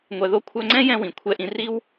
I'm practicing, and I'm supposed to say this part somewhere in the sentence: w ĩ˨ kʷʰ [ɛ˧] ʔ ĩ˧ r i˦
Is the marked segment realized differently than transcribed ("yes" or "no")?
no